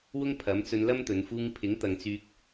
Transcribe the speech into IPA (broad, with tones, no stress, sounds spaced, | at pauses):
w ʊ˥ ŋ pʰ ɐ˨˥ m t͡s ɵ˧ n l ɐ˥ m t̪ ɵ˨˧ n f uː˧ ŋ pʰ ɪ˨˥ ŋ t̪ ɐ˨ ŋ t͡s yː˧ k̚